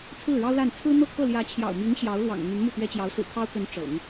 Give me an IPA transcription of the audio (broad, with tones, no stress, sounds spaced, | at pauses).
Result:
t͡sʰ ɹ̩˥˩ ɻ ɑ˥ ʊ̯ l a˥˩ n t͡sʰ ɹ̩˥ n̪ ɤ˥˧ kʰ ɤ˥˩ l j ä˧˥ t͡ɕʰ j ɑ̰˨˩ ʊ̯ m i˧˥ ŋ ɕ j ɑ˧˥ ʊ̯ l w ɑ̰˨˩ ŋ n̪ y˧˥ n m u˥˩ t̪ ɥ ɛ˥ t͡ɕ j ɑ˧˥ ʊ̯ s ɹ̩˨˩ kʰ ɑ˥ ʊ̯ k ə˧˥ n ʈ͡ʂ ɤ̰˨˩˦ ŋ